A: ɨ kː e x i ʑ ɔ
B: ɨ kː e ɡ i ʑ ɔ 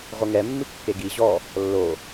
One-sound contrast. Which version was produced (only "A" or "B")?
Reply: B